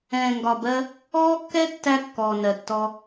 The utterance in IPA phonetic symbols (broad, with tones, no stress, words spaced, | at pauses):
ɛ̃ː˨ŋɡɒ˨bɜ˧ | ɔː˦kːɛ˦tːæ˧ kːɔː˨nɜ˨tːɔ˧